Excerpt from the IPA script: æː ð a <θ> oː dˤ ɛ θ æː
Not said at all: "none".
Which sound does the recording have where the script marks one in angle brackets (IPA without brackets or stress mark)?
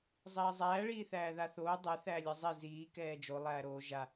θ